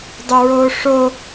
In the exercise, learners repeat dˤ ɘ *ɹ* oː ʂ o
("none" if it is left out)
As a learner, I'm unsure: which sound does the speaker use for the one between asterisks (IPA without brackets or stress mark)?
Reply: ɹ